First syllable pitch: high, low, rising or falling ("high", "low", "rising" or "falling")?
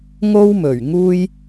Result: high